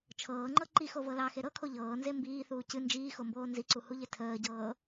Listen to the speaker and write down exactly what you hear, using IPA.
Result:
t͡ʃʰ ɤː ŋ͡ǃ ɤ ǃ i x o v ɤ l ɑ x e ɾ ɤ kʰ o ʎ ɤː n z e m b iː θ uː c ɨ n d͡ʒ iː x o m b oː n z i ǀ u h u ʎ e tʰ əː ɟ ɤː

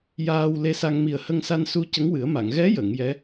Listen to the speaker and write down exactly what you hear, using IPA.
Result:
j aː˧ w l e˧˥ s a˧ ŋ m i˨˩ ə̯ h ə˧ ŋ s a˧ n s u˧ c ə˧˥ ŋ w ɨ˨˩˦ ə̯ m a˨˩˨ ŋ ɣ ɛ˧˥ j ə˨˩˨ ŋ j ɛ˧˥

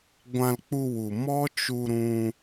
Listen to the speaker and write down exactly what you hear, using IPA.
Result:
ɡʷ ã˧ l k͡p u˧ w u˨ m ɔ˦ t͡ʃ u˧ ɾ ũ˧

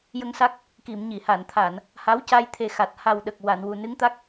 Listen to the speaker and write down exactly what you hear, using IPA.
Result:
j ə˧ ŋ s a˦˥ k̚ | k i˨˩˨ m ɲ i˨˩˨ h a˨˩˨ n t̪ʰ a˨˩˨ n | h a˧˥ w c a˧ j t̪ʰ e˨˩˦ x a˨˩ t̚ h a˨˩ w ɗ ə˨˩ k̚ w a˨˩˨ n w u˨˩ n ɨ˧˥ ŋ t̪ a˦˥ k̚

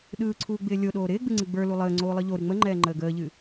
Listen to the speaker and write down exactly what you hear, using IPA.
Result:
ɗ ɯː ǀʰ uː ɡ͡b ɪː lʲ o ɗ oː ɾ ɪː ɡ͡b ɨ ŋ͡ǀ ɨ ɡ͡b ə˞ l u lˠ əː ŋ͡ǀ oː lˠ ɯ ʎ o ɾ ɨ ŋ͡m ə ŋ͡ǃ ɛː ŋ͡ǃ əː ɡ əː ʎ ɨ

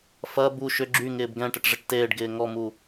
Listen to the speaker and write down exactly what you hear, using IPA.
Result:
f ɐ b u ʃ ʏ ɡ͡ǁ y ŋ ɪː b ɡ ɛ̃ ʈ ə ʈ ʐ ɪ ʈ t eː ɖ ɡ ɪː ŋ ɔ m u

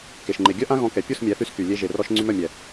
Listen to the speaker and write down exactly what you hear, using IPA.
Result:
k e˨ ʃ ŋ͡ǃ e˨ ɡʲ œ˦ ʔ ã˦ ɣ ɔ̃˧ k ɛ˨ pʲ u˦˨ s mʲ ɛ˨˦ θ y˧ s k y˨ lʲ e˧ ʒ e˨ r ɔ˧ ʃ ŋ͡ǀ y˧ m œ˦˨ mʲ ɛ˨

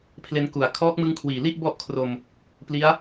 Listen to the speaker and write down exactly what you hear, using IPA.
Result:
pʰ l e˧ n k u˨˩ a̯ kʰ ɔː˦˥ k̚ m ɯ˦˥ ŋ kʰ w iː˨˩ l i˥˩ ʔ b ɔ˥˩ ʔ kʰ r o˧ m | p l i˦˥ a̯

